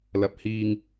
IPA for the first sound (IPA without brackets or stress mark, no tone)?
l